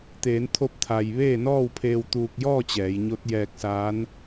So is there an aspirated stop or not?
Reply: yes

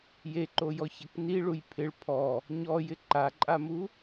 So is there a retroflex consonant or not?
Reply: yes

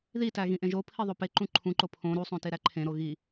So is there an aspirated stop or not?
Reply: yes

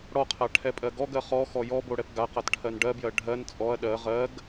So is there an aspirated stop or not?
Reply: yes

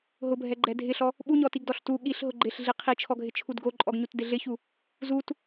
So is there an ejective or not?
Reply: yes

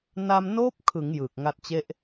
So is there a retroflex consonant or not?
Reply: no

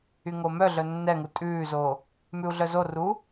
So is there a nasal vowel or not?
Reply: no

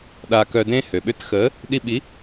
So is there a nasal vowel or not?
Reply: yes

